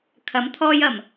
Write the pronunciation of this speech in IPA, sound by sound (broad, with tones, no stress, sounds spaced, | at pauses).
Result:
kʰ ɐ˨˥ m t̪ʰ ɔː˧ j ɐ˨˩ m